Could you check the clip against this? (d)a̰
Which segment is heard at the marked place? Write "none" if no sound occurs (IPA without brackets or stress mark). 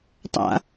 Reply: tˤ